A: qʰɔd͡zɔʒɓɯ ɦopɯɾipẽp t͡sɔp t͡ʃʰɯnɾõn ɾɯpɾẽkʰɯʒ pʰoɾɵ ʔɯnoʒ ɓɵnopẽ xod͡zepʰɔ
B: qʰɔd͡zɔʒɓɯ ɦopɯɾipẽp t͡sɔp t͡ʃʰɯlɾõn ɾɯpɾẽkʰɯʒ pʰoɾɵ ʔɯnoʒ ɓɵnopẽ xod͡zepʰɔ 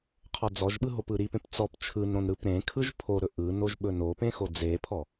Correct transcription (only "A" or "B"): A